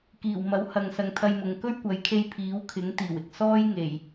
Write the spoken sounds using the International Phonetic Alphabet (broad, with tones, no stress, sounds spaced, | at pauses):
k iː˨˩ w m ɐ˨˥ w h ɐ˨ ŋ s ɐ˨ ŋ t̪ʰ ɐ˧ j m ʊ˨ ŋ k ɵ˥ ɥ kʷ ɐ˨˥ j kʰ e˧ j pʰ iː˨˥ w kʰ ɪ˨˥ ŋ t̪ iː˨˩ w ɪ˨ k̚ s ɔː˥ j ŋ e˨˩ j